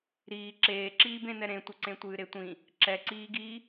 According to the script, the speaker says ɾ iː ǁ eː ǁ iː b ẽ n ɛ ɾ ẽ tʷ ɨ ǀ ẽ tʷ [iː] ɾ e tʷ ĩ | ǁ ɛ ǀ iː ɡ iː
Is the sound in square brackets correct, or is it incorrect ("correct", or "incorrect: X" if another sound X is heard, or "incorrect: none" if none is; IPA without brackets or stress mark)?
incorrect: ɨː